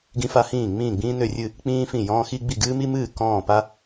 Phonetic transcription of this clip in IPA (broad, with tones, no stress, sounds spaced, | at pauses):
ɡ ĩ˧ f a˧ h ĩː˧˩ ŋ͡m ĩː˧˩ ɡ͡b ĩː˧ n ø˧˩ rʲ ɨ˧˩ | k͡p ĩː˧ f ĩ˧˩ j ɔ̃ː˧ x i˧ ɡ͡b i˧˩ ɡ ɨː˧ m i˧ m ɨː˧˩ k ɔ̃ː˧˩ p a˧